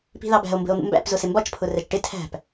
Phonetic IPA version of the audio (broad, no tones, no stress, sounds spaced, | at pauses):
p i̤ ð ɑ b æ̤ o̯ m b ə̤ o̯ n̪ ṵ m b æ̰ p z ʊ s ɪ m b ɒ t͡ʃ pʰ ʊ r ɛ t͡ʃ ʈ ɪ tʰ æ̤ p